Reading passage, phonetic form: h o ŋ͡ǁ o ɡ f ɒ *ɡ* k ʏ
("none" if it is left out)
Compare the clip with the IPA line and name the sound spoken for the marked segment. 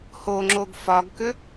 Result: ɡ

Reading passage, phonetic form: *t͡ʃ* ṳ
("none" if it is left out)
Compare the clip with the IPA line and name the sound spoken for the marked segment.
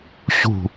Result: ɕ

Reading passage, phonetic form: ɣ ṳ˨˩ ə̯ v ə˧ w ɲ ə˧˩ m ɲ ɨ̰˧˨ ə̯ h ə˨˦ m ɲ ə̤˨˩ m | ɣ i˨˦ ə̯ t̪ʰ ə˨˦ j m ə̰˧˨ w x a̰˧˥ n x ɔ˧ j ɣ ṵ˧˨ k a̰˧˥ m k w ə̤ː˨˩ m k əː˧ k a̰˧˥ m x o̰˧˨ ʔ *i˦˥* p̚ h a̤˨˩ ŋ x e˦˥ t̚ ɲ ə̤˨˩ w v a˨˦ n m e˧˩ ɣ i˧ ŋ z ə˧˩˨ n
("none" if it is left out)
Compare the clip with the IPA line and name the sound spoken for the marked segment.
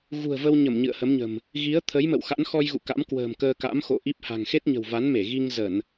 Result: i˦˥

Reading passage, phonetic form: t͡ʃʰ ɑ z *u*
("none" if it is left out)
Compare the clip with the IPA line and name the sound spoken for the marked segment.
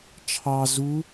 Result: u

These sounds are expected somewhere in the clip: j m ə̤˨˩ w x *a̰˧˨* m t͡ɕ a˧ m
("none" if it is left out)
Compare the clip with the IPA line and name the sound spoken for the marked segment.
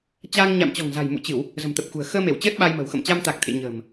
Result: ə̰˧˨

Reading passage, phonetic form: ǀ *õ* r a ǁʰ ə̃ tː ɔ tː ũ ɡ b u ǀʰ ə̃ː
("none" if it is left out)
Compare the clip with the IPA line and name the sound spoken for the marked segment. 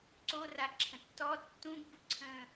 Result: o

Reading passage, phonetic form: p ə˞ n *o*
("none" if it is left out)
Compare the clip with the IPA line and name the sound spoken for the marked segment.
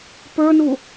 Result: u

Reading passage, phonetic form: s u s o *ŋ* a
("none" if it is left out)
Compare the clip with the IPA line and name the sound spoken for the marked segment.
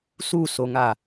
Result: ŋ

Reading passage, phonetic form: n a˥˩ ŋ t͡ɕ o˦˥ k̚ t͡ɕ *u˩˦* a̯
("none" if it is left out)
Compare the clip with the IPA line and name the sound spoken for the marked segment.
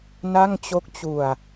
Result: u˧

